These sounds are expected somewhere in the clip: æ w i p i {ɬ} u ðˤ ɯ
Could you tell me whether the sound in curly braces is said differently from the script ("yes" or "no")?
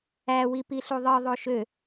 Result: no